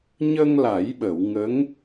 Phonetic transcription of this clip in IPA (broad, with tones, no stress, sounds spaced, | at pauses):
ɲ ə˧ ŋ l a˨˩˦ j ɓ ə˨˩˨ w ŋ ə˧˥ ŋ